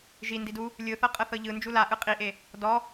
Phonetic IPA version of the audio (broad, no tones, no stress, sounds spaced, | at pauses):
ʒ i n d i d u | lʲ ɯ θ ɤ qʼ ɤ θ ɤ ʎ ɯ n d͡ʒ u l a ʔ ɯ qʼ i ʔ e | d ɔ